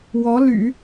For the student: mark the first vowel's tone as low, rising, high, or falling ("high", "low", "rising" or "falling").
rising